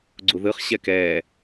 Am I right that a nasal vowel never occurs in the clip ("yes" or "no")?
yes